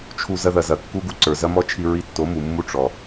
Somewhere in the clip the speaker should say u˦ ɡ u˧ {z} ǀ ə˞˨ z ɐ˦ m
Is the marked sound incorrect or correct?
incorrect: none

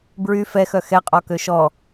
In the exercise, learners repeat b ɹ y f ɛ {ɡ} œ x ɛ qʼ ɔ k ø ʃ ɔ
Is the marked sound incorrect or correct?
incorrect: x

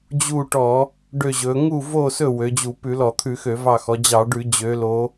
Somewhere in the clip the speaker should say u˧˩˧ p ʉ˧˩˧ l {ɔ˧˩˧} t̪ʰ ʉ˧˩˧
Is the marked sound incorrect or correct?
correct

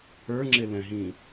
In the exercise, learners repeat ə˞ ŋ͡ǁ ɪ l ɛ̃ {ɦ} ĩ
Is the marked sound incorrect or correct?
correct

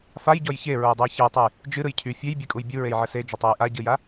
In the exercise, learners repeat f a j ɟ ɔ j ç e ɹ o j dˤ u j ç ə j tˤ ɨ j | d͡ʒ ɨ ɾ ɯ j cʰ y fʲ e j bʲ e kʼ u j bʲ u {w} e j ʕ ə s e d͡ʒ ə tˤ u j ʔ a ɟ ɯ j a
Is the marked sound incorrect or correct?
incorrect: ɹ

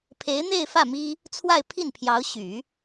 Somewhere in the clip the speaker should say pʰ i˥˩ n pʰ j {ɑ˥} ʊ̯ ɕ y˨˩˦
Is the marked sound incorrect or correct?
incorrect: ɑ˧˥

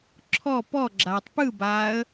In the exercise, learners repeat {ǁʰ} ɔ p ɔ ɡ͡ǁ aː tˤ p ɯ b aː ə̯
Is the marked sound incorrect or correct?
correct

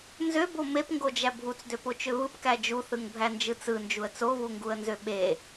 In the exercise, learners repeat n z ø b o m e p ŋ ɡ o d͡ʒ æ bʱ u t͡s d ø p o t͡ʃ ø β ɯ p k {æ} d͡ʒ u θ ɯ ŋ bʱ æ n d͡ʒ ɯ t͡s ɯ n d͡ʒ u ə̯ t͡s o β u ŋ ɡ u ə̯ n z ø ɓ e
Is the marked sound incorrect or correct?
correct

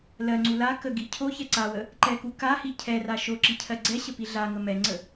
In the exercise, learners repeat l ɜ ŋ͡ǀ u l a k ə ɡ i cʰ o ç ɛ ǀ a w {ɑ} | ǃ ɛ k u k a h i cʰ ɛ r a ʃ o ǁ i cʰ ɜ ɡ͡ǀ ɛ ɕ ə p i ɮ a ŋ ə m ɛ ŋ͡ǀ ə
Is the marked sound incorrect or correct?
incorrect: ə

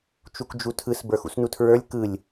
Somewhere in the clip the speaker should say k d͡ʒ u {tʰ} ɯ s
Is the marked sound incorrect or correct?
correct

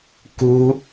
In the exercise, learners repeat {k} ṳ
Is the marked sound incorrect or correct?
correct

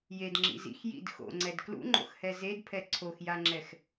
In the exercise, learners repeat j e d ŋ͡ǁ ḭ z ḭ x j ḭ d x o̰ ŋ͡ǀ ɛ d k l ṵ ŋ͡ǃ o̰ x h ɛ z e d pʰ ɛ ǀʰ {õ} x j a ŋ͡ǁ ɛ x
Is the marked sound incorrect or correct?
incorrect: o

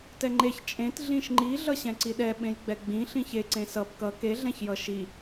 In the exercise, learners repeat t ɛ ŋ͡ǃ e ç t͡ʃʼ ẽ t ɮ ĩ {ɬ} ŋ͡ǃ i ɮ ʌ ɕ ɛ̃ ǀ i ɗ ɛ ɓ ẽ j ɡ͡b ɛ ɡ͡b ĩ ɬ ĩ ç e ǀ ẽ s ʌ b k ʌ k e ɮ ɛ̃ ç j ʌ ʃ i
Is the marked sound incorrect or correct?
incorrect: ʃ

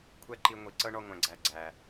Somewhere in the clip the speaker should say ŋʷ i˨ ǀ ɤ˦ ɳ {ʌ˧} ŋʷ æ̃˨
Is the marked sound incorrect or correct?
incorrect: ɔ˧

